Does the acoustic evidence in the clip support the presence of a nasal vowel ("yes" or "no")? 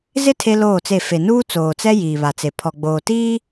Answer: no